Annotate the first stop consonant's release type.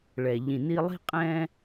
ejective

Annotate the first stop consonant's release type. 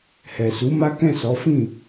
plain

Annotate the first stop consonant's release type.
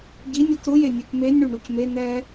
plain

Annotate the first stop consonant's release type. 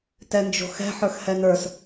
plain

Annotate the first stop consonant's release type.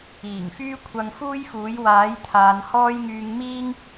aspirated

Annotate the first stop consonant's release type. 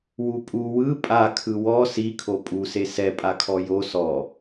ejective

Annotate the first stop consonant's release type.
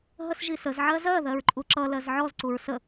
click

